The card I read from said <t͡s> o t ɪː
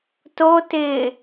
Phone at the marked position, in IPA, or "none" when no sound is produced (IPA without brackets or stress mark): t